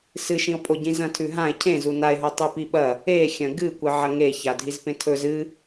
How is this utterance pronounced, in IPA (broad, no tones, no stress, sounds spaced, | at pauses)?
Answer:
s ɨ ʃ ĩ o̯ pʼ o ɟ ĩ z ɐ̃ tʰ ʉ ɦ ã e̯ cʰ ẽ z u n a e̯ ɦ o tˤ e p i ɓ ɐ | e xʲ ɐ̃ ɡ ɨ kʷ ɨ ʕ ɐ ŋ e ç a dʱ i z p ẽ tʰ ɵ z ɨ